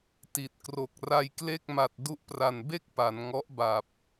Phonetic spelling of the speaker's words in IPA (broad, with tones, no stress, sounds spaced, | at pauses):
t i˨˩ t̚ k r o˨˩ k̚ r a˧ j k l e˥˩ k̚ m a˨˩ t̚ d u˦˥ ʔ p r a˨˩ n b e˥˩ k̚ p a˩˦ n ŋ ɔ˦˥ ʔ b a˨˩ p̚